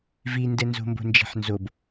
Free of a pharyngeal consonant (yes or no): no